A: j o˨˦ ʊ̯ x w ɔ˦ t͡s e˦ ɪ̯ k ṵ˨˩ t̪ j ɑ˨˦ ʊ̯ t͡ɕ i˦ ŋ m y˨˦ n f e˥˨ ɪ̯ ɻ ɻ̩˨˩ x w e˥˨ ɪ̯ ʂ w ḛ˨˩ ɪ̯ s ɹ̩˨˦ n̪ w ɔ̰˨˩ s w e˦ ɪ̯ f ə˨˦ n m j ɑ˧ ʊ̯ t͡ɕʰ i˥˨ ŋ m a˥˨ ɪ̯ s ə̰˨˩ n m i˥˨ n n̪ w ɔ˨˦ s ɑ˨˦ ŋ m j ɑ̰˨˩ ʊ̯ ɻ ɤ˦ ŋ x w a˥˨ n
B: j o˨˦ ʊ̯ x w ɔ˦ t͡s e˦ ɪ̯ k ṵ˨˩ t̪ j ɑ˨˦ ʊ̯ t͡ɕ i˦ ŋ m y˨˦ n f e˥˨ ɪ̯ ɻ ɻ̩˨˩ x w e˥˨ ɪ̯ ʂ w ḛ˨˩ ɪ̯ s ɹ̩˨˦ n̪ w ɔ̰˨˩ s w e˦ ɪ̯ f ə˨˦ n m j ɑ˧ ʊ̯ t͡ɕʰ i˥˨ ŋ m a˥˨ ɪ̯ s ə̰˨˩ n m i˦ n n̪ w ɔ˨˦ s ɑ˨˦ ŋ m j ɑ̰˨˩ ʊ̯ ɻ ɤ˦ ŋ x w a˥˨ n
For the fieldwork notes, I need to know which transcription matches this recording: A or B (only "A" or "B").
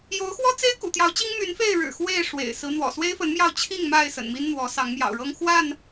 B